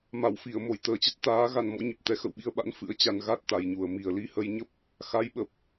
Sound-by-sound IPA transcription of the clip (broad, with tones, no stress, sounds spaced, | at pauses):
m a˧˩ w f i˧˩ ə̯ m o˧˩ j t̪ əː˨˩ t͡ɕ ə˦˥ t̚ t̪ aː˨˦ ɣ a˧ n m ɔ̰˧˥ ɲ ə˨˩ p̚ t̪ ɛ˨˦ x ə̰˧˨ w ɓ i˧ ə̯ ɓ a̰˧˥ n f ɨ̰˧˥ ə̯ t͡ɕ a˧ n ɣ a˦˥ t̚ t̪ a˨˩ j ɲ u˨˩ ə̯ m i˨˩ ə̯ l i˧ h ə˧ j ɲ ə˦˥ p̚ | x a˨˦ j ɓ ə˨˩ p̚